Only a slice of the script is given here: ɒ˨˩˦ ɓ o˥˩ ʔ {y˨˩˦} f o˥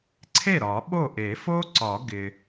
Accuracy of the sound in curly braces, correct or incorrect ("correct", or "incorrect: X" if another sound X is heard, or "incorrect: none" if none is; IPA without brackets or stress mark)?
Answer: incorrect: e˨˩˦